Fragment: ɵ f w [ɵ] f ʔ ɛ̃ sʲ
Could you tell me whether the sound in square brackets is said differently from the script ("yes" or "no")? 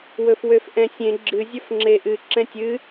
yes